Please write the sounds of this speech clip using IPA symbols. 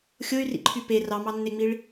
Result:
xʲ o y̯ r ḭ ǃʰ y p e r ɑ m ɑ nː e ŋ͡m i ɭ

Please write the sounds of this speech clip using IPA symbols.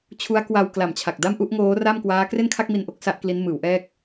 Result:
t͡ɕʰ u˦˥ a̯ k w a˧ w k l a˨˩ m t͡ɕʰ a˨˩ k̚ d a˥˩ m ʔ u˦˥ ʔ ŋ oː˦˥ r a˥˩ m k w aː˦˥ k r e˥˩ n kʰ a˥˩ k̚ m i˧ n ʔ o˦˥ k̚ s a˦˥ ʔ k l i˦˥ n m ɯː˩˦ w ʔ ɛː˥˩ k̚

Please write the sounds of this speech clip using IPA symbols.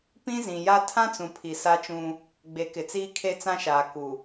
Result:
p ĩ˦ z ĩ˨ j a˦ tʰ ã˦ t͡s ũ˨ pʰ i˨ s a˦ t͡ʃ ũ˦ | ɡ͡b e˨˦ k ɪ˨ t͡s iː˦ kʰ e˦ t͡s ã˦ ʃ aː˨ k u˨

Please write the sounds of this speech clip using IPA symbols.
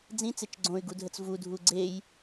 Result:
d͡z ĩ t͡s e t͡ʃ ɡ͡ǀ õ y̯ ɡ u dʱ ə t͡s v u dʱ u ɡ͡ǀ e j

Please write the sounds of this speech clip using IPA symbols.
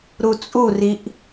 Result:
ɾ u t͡sʼ u r i ʔ

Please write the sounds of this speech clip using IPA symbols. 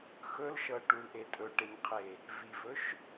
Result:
x ɵ l ʃ ɤ ʈ u l ʔ e tʼ ɵ ʈ e ɲ qʰ e | v i v ɵ ʃ

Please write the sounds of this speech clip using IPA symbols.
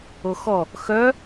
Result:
o x ɔ | x œ

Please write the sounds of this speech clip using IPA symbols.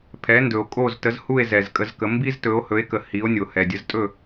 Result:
pʰ ɛ˩˥ n d ɵ˩ o̯ kʼ o˥˩ z t ə˩˥ z h u˥˩ e̯ z ɛ˩ z kʼ ə˧ z k ə˩˥ m b i˥ z t ɵ˩˥ o̯ h ɵ˩˥ e̯ k ə˩ h i˩˥ o̯ nʲ o˩ h ɛ˩ dʲ ə˩˥ z tʼ ɵ˥˩

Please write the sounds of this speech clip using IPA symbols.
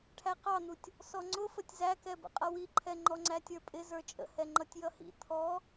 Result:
ʈʰ æ q ɑ n̪ u tʲ | s ɔ ŋ͡ǀ ʊ f ə tʲ z æ k ɛ b ə̰ qʼ ʌ w i ǃʰ ɛ ŋ͡ǃ ɔ ŋ͡ǀ æ tʲ ə˞ pʼ ɪ z ə˞ t͡ʃʼ ə̰ h ɛ ŋ͡ǃ ʌ tʲ j ʌ h ḭ t̪ʰ ɔ

